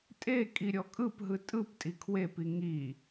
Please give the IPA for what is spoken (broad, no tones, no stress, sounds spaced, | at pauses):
tʼ e kʼ i ɾʲ ɔ kʼ ɯ p ɦ ɯ tʼ ɯ p tʼ i kʰ w e p i ŋ i